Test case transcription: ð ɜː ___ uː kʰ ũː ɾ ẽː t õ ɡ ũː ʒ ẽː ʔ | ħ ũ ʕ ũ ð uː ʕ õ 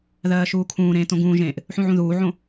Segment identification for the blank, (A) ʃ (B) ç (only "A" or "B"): A